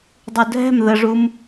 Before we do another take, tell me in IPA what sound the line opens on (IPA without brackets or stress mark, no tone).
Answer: dˤ